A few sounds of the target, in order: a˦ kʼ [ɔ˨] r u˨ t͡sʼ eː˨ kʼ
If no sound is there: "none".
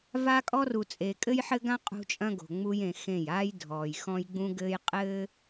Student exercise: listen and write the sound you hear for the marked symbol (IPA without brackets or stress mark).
ɔ˦